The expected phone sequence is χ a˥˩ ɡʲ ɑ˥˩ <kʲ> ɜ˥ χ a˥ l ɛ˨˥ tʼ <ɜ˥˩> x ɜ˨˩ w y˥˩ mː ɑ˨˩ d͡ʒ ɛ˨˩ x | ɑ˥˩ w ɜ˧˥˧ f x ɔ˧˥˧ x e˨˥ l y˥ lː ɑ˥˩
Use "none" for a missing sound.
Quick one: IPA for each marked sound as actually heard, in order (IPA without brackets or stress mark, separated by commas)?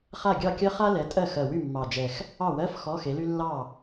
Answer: kʲ, ɜ˥˩